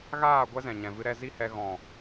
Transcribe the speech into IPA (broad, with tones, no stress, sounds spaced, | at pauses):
ɣ aː˦˨ ɡʷ ɛ˦ z ɛ̃˨ ɲ ɛ̃˨ v ɨ˧ ɾ ɛ˧ z i˦ h ɛ˧ ɣ ɔ̃˨